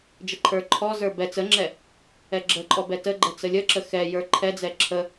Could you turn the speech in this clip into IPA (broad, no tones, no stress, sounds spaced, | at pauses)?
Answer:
d͡ʒ ə ǃʰ ə˞ ǃʰ ɔ z ə˞ b ɛ t͡s ə ŋ͡ǁ ɛ | ɛ ɡ͡ǁ ə ǃʼ ɔ b ɛ t ə ɡ͡ǃ ɛ t͡s ə lʲ ə ǁ ə x ɛ j ə˞ ǃʰ ɛ d͡z ɛ ǁʰ ə